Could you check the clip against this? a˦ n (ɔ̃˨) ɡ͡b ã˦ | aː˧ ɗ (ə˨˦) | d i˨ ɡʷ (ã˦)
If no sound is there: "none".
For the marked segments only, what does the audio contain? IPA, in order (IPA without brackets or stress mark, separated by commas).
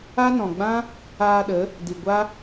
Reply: ɔ̃˨, ə˨˦, a˦